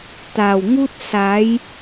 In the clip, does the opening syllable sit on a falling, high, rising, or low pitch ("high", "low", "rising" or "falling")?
low